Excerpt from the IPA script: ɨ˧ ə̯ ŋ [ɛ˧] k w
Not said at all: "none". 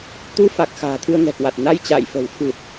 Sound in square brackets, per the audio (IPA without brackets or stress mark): ɛ̤˨˩